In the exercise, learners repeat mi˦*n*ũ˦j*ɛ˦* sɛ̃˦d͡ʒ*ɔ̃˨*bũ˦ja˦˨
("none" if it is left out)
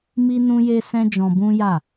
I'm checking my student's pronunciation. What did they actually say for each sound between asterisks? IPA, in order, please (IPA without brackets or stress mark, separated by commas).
n, e˦, ɔ̃˧